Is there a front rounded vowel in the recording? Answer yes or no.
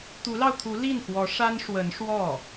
no